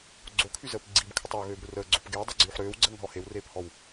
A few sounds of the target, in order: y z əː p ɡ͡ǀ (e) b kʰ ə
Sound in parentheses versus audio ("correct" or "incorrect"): incorrect